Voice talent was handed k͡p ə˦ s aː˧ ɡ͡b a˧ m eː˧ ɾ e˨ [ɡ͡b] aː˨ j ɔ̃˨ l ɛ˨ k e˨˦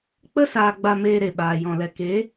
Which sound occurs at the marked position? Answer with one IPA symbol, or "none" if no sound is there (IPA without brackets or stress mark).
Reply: ɓ